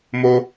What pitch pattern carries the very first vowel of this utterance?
high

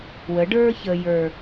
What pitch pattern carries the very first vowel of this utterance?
rising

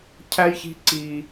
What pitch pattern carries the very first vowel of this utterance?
high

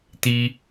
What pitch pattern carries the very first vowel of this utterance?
high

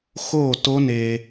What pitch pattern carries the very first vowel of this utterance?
falling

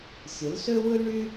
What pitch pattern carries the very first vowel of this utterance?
rising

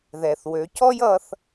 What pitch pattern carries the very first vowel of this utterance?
low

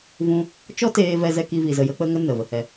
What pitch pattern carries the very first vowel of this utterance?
high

